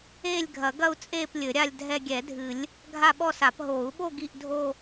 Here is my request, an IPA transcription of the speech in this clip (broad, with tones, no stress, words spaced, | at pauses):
eː˥˧lʲɡʱɐ˨˩˦ ɡɐ˥˧u̯ t͡sʼeː˥˧p lʲɘ˨˩˦ɾʲa˥˧lʲ dʱɛ˥˧ ɡʲɛ˨˩˦dʱɨ˨˩˦lʲ | ɡʱa˥˧ɓɔ˥˧sa˨˩˦p ɦoː˨˩˦u̯ɓo˥˧ ɡi˥˧ʔdʱo˥˧